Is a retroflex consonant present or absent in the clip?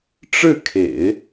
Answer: present